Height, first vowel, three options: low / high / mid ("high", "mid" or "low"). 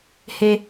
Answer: mid